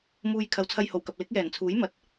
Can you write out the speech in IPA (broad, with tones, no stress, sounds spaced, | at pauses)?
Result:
m uː˧ j kʰ ɐ˨˧ w t͡sʰ ɐ˧ j h o˨˩ w k ɐ˨ p̚ l ɪ˨˥ k̚ j ɛː˨˩ n t͡sʰ uː˨˥ j m ɐ˨˥ t̚